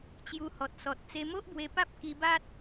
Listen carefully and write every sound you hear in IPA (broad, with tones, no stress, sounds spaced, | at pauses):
t͡ɕ j u˧ h ɔ˨ t̚ s ɔ˨ t̚ t͡s e˧ m o˦ ʔ b w e˧ p a˦ p̚ k i˧ b a˦ t̚